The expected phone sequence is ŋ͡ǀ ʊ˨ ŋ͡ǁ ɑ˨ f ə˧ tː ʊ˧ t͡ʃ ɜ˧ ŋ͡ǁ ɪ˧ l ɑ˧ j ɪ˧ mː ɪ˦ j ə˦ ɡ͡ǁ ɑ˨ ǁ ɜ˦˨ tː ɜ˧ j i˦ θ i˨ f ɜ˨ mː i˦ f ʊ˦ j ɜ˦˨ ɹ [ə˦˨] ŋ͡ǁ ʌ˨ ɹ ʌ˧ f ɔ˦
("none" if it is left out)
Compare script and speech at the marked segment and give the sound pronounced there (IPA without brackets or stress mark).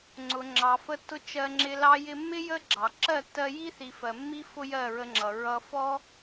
ə˧